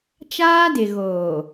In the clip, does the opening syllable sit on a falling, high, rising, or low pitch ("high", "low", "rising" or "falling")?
high